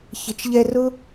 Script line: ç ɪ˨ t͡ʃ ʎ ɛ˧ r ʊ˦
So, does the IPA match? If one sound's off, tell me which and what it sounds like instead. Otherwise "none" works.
none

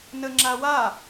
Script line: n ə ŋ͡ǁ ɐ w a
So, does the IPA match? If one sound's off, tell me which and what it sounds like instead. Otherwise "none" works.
ɐ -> a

